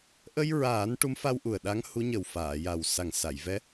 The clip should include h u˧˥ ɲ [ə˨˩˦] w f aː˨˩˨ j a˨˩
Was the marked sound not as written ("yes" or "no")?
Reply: yes